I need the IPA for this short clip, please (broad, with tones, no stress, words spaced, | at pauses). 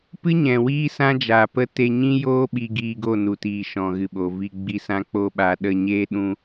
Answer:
pɨ˦ɲɛ̃˨ wiː˦sã˦d͡ʒaː˨ pə˦ te˧ɲĩ˦joː˦ ɓi˧ɡiː˧ɡo˦˨ nu˨tiː˨ ʃɔ̃˨ɣɨ˨ɓo˨vi˧ ɡ͡bi˧sã˦k͡po˦ɓa˧ ɗə˧ɲeː˦ ɗũ˦